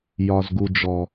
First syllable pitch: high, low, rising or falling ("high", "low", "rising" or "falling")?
low